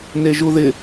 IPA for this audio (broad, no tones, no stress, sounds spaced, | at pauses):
n e ʒ u ð ɪ